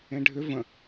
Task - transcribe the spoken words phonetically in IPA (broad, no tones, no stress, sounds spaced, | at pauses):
ẽ ɖʱ ʏ v ə̃